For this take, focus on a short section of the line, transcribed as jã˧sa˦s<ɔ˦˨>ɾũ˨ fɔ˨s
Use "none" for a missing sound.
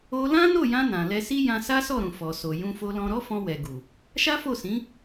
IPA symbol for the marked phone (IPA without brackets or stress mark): ɔ˦˨